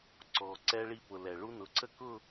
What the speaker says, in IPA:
ǀ ɔ˨ ǀ ɛ˦ ɭ i˦˨ p ʊ˨ l ɛ˨ ɭ u˦ n ʊ˨˦ ǀ ə˦ k ʊ˦˨

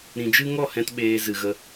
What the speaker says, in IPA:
ɾ ĩ˨ d͡ʒ ɨ˦ ŋ ɔ˦˨ h ɛ̃˧ t ɓ eː˧ z ɨ˨ ɣ ə˧

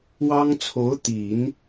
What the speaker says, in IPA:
w ɑ˥ ŋ t͡sʰ o˧˥ ʊ̯ t̪ i˨˩˦ n

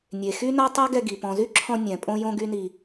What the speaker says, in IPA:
nʲ e˨ x y˦ n a˦ tˤ ɛ˦ ɡ ɛ˧ ɡ i˨ p ɔ̃˨ z y˦ ǁʰ ɔ̃˧ nʲ ɛ̃˨ pʼ õ˦ j õ˦ ɡ y˦ n i˧

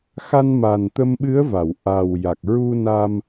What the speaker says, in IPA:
x a˧ n m a˨˩ n t̪ ə˧ m ɓ ɨ˧˥ ə̯ v a˨˩˨ w ʔ a˨˩ w j a˨˩ k̚ ɹ u˧ n a˧ m

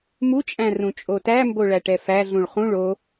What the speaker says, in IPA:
m u t͡ʃʼ æ̃ r ũ t͡ʃʼ o t æ m b o ɭ æ ʈ ɛ f æ ɮ ũ ɭ χ ũ ɭ o

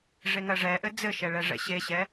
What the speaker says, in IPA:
ʐ e ŋ ɜ ʐ ɛ ʔ ɘ d͡z ɘ ʃ ɛ ɭ ɛ ʐ ɛ̰ ɕ e ɕ ɛ

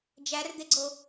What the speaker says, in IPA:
d͡ʒ æ r d̪ e ɡ͡ǀ o

